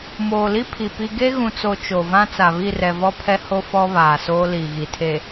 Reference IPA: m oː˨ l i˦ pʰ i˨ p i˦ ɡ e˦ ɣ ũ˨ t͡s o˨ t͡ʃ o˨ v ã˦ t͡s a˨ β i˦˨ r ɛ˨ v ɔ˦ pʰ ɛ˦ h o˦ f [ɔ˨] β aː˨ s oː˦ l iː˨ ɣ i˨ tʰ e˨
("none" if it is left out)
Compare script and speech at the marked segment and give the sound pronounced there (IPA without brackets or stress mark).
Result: ɔ˦